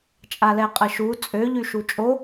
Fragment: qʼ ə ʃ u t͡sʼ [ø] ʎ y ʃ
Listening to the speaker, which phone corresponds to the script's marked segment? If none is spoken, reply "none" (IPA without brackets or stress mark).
ø